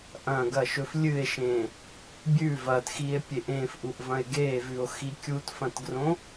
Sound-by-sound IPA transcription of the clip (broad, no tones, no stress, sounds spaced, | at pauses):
ʔ ɐ̃ ɡ ɐ ʃ ɵ f lʲ ɨ e̯ ʃ ẽ | bʲ ʉ v ɐ t x i e̯ pʲ e ʔ ẽ f ʔ u ʔ v ɐ̃ e̯ ɡ e v ʉ o̯ x i kʲ u t f ɐ̃ t ɡ r õ